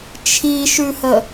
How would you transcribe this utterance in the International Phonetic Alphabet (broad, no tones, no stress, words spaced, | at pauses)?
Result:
t͡ʃʰiʃʉhə